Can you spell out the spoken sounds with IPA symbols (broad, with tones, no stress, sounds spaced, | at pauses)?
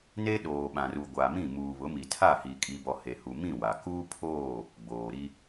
n e˦ ɗ oː˨ ɓ ã˨ r u˨ ɡʷ a˨ m ĩ˦˨ m uː˨ β ʊ˨˦ m i˨ tʰ a˦˨ h i˨ kʼ i˨ b ɔ˨ h e˨ h u˨ m ĩ˦˨ w a˨ k uː˦ pʰ oː˦˨ | ɡ͡b oː˨ ɾ i˦